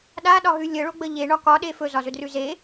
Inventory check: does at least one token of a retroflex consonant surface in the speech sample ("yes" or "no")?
yes